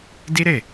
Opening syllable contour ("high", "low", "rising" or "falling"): high